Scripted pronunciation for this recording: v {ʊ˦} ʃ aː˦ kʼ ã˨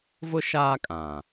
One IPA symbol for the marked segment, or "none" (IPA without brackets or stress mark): ʊ˦